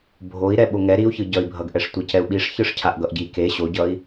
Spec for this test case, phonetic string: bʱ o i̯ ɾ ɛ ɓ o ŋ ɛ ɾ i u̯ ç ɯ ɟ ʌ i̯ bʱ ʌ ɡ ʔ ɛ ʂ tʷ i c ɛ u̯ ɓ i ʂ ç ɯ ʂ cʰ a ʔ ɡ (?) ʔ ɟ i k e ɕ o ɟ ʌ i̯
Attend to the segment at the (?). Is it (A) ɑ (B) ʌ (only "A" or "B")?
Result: B